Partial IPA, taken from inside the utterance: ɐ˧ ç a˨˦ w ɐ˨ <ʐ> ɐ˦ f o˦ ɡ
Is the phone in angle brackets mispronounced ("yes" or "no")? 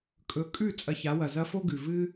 yes